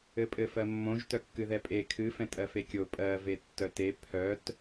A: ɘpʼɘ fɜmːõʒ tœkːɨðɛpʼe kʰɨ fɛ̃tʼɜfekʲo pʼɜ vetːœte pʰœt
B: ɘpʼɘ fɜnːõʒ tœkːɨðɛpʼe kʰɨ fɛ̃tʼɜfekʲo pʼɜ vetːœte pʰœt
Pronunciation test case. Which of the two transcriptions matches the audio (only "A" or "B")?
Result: A